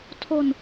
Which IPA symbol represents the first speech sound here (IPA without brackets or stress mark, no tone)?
tʰ